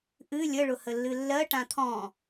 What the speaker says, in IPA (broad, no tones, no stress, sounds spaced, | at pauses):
ʔ ɨ lʲ ə ɭ ʊ h ə lː ɨ lː ɜ ʈ ã t̪ʰ ɔ̃